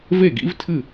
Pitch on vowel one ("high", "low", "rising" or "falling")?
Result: falling